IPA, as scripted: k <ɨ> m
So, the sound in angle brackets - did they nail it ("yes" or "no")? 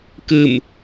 yes